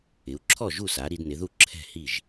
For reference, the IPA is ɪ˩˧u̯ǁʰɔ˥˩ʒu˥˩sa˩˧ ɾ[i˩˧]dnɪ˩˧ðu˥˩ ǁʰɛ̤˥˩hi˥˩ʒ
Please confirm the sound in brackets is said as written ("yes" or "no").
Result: yes